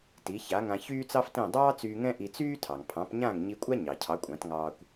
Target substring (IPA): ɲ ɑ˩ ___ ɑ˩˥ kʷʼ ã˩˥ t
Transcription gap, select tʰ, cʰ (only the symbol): cʰ